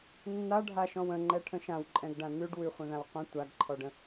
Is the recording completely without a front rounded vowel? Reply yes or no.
yes